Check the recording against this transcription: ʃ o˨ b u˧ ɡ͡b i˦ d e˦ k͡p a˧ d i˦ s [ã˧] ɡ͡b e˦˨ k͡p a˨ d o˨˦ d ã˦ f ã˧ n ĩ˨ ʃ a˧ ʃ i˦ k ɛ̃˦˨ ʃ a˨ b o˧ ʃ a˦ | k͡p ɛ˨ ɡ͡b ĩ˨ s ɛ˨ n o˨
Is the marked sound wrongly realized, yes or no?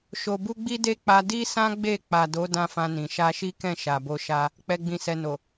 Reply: yes